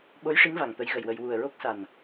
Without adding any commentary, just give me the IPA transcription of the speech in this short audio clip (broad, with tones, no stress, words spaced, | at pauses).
ɓo˧˥jʂi˧˥ŋ va˨˩ŋt̪ə˧˥jɣə˨˩jwə˧j wu˨˩ə̯ɹo˦˥k̚sa˨˩n